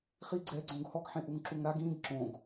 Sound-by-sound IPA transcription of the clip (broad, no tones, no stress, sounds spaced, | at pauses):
χ i ɡ͡ǀ ɛ ɡ͡ǀ õ ɡ h ɔ ɡ ħ ẽ ʔ u ŋ ǁ u ŋ ɾ a ɡ ĩ ɡ ǁ õ ɡ